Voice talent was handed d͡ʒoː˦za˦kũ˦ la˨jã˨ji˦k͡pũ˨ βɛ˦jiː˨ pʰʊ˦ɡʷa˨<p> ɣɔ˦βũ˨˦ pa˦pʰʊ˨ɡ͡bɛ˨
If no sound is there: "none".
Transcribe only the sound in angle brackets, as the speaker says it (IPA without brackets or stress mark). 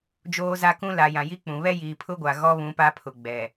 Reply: none